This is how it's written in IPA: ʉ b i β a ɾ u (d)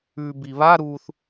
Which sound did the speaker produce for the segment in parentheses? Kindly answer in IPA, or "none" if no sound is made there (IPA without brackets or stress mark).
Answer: θ